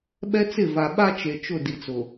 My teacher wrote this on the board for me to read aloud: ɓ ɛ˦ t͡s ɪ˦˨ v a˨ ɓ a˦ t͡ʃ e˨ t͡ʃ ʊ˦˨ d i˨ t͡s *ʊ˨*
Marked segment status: correct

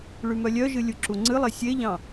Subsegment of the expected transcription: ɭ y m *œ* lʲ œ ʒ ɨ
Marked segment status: correct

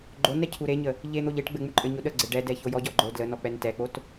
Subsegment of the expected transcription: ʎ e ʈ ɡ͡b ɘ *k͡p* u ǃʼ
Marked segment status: incorrect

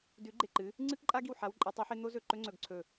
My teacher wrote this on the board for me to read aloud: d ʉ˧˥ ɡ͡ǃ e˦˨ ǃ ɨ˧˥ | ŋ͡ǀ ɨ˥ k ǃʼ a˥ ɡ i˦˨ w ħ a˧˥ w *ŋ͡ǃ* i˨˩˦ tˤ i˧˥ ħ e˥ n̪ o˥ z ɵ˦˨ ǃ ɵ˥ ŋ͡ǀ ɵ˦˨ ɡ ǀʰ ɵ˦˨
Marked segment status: incorrect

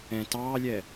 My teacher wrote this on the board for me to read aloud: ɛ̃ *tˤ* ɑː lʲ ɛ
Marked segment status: incorrect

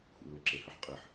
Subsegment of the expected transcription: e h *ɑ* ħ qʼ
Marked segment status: incorrect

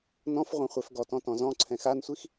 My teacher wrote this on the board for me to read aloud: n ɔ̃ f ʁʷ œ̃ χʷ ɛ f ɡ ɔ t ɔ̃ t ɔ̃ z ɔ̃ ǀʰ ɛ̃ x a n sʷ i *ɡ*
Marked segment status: incorrect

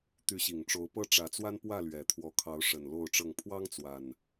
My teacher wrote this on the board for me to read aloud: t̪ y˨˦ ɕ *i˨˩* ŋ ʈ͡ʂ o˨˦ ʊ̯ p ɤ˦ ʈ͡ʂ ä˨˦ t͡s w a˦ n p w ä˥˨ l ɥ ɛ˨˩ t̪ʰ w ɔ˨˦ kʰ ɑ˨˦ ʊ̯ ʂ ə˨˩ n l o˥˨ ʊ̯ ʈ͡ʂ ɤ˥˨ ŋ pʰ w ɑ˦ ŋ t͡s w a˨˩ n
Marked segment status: correct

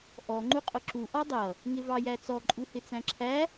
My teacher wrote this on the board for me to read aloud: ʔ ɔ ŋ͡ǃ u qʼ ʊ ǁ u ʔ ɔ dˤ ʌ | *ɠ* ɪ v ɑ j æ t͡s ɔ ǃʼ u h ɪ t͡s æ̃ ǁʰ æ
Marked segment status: incorrect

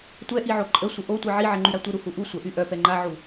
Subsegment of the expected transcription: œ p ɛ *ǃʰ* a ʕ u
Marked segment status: incorrect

